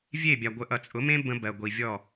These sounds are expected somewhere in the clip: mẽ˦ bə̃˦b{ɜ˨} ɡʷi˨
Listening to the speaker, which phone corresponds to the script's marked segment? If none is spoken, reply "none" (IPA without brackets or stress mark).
ɜ˨